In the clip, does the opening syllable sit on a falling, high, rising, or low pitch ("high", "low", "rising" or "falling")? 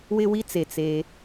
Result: high